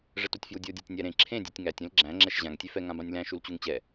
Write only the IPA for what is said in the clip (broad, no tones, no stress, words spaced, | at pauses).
ʐɛtutʲfjudʲo dʲætʲnʲæɾẽ ǁʰẽ dʲutʲŋætʲ ẽlɡ͡ǁæ̃ ŋ͡ǁɛʃʑãŋ tʲefɛ ŋãbãnʲlæ̃ ʃult͡ɕuŋt͡ɕɛ